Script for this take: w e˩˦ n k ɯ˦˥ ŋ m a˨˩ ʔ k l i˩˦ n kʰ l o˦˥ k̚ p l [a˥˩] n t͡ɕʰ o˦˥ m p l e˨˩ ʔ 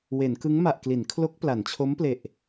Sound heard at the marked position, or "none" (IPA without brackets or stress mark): a˩˦